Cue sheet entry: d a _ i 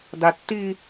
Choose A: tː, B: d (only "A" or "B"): A